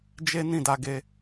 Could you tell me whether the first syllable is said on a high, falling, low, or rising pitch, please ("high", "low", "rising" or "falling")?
high